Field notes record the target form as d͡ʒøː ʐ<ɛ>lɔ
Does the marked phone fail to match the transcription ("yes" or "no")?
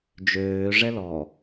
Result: no